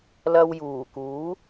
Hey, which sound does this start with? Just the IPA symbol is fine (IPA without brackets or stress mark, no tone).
l